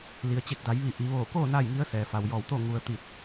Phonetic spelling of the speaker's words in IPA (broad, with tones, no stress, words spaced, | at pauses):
li˩ə̯t͡ɕe˧˩k̚da˩˧j ʋi˧˩ʔi˩˧ ʋoː˧˩koː˥˨ na˥˨jŋi˧˥ə̯sɛː˩ fa˩wjɔː˧˩wt̪o˥˨ ŋu˧ə̯ t̪i˧˩t̚